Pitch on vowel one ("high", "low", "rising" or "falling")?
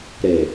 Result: low